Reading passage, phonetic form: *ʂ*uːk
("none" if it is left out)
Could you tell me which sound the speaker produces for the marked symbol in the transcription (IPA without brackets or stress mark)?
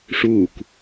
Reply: ʂ